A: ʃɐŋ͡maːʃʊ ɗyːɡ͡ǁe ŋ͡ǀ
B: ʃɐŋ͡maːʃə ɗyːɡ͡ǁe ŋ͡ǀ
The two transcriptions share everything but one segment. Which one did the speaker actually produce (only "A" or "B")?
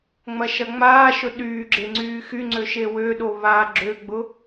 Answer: A